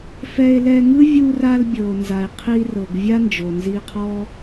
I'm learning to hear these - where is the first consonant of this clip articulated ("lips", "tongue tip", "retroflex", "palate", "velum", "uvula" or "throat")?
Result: lips